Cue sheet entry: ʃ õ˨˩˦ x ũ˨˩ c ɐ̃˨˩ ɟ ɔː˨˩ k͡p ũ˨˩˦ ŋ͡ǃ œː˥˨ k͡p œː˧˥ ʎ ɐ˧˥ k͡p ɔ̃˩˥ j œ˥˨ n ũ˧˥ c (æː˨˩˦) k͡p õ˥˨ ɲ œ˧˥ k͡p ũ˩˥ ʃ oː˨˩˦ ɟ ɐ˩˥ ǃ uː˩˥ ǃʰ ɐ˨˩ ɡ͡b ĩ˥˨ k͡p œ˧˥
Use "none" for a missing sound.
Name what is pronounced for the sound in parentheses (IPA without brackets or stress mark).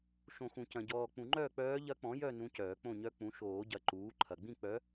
œː˨˩˦